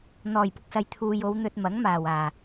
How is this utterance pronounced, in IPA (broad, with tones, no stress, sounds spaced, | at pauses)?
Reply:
n̪ ɔː˨˩ j p ʊ˨ k̚ s ɐ˨ j t̪ʰ uː˨ j o˨˧ w n̪ ɵ˧ t̚ m ɐ˨˥ ŋ m aː˨˩ w aː˨˩